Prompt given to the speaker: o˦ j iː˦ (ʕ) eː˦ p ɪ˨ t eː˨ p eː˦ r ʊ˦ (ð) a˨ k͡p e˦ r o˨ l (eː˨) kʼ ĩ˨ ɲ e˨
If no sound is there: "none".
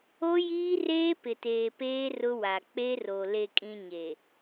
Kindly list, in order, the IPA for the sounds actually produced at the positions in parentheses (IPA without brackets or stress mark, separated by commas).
r, w, e˨